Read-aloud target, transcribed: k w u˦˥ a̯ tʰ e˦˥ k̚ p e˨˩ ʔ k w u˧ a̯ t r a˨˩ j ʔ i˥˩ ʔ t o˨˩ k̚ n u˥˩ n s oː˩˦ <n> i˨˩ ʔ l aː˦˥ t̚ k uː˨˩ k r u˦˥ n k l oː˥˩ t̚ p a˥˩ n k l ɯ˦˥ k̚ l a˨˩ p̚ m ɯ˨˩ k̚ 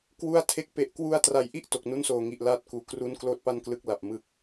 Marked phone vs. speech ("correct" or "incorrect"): incorrect